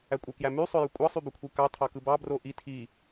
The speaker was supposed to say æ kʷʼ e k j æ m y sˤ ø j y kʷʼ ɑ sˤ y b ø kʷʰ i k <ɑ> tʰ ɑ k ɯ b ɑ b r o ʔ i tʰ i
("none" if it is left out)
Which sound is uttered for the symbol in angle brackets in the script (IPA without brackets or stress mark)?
ɑ